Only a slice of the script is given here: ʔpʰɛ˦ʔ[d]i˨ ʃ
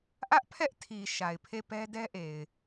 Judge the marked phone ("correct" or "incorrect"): incorrect